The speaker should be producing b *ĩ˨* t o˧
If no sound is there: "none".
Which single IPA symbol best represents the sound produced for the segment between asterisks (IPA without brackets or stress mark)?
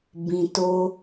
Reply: ĩ˨